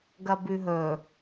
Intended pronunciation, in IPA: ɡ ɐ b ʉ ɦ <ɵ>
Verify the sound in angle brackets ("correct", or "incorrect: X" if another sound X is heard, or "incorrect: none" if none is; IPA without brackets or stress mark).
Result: correct